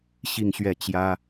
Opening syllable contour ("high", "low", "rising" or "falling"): falling